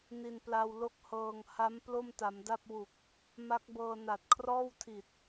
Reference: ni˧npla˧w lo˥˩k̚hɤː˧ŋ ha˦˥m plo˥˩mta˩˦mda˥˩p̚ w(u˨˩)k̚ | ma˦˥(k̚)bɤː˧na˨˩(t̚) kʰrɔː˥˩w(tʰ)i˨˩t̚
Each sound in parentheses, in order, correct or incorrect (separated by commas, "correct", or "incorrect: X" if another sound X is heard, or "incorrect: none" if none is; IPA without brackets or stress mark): correct, correct, correct, correct